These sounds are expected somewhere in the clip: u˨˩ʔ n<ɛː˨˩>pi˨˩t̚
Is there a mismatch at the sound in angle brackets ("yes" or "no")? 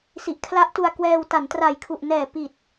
no